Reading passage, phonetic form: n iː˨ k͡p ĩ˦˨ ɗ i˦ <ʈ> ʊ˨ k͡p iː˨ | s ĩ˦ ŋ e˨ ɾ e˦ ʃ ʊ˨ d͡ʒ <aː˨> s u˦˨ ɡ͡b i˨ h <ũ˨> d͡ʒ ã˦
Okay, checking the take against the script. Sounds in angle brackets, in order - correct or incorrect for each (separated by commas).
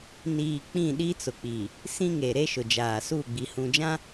incorrect, correct, correct